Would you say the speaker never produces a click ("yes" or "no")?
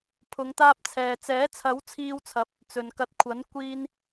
yes